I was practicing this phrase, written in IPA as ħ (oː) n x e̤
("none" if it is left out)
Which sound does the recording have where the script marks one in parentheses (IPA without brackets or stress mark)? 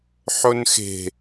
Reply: o